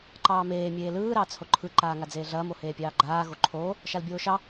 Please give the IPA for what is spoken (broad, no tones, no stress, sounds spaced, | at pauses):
ǃ ɑː m eː mʲ eː l ɯː ɾ ɑː t͡s h o ǃʰ ɯ ǃ aː ŋ a d͡z eː ɮ ɐː m o h eː pʲ ɑː ɡ͡ǃ aː ɣ o ǃʰ oː | ʃ a l bʲ oː ʃ ɑ